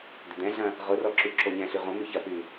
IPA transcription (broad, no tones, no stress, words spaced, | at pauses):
d̪ʏd̪ɛ̃ɮɐ̃ | ʁʊrɔ ǁyǁoɲɛ̃ɬy ʁõmy çɐpy